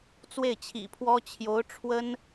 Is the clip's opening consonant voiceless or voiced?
voiceless